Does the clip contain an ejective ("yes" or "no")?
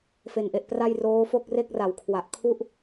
no